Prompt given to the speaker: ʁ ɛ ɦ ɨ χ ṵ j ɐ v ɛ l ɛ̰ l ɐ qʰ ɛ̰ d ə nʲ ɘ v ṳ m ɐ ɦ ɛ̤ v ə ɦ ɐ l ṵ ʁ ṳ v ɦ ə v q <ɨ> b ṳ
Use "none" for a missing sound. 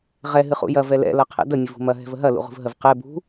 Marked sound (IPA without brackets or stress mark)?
ɛ